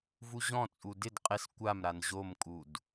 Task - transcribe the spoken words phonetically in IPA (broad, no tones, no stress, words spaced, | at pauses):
vuʑɔ̃t͡sʼu dɪd qʼɪs kʷamɾan ʑomkʼud